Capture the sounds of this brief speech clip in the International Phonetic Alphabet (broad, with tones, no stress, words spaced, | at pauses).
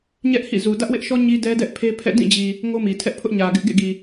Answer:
ɲɛ˦ʔhḭ˦˨zu˨ dä˦ʔwɪ˦ʔʃɔ˦ ɲi˦dɛ˦dɛ˦ʔ pʰe˦pʰɛ̰˦˨ dĩ˦˨d͡ʑi˨ | ŋo˦mi˨ tʰɛ˦ʔpʰʊ˦ʔɲä˨ɡɪ˦ʔ ɡḛ˦˨ɡi˨